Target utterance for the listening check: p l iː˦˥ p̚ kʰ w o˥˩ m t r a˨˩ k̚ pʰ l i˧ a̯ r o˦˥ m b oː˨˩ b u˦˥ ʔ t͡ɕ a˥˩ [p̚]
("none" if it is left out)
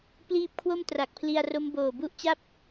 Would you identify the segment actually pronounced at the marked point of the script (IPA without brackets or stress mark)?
p̚